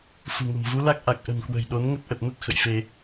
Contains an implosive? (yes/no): yes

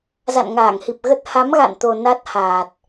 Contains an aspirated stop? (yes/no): no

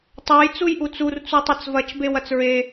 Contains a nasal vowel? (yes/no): no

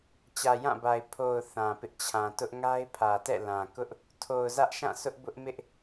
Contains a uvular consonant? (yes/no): no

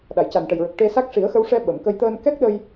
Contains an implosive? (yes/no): yes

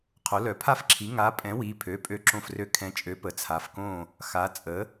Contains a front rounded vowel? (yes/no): yes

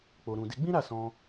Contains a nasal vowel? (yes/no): yes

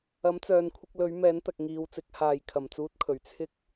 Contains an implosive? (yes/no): no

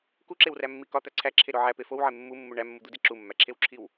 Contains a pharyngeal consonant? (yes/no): yes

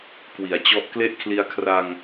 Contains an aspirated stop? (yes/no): yes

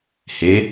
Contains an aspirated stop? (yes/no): no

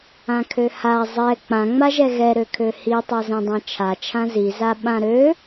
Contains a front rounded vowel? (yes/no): yes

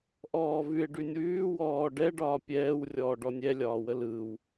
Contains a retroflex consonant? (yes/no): yes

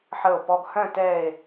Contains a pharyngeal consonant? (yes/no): yes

